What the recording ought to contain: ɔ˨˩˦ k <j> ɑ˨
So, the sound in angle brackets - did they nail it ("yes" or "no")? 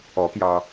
yes